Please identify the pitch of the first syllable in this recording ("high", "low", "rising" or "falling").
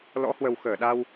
rising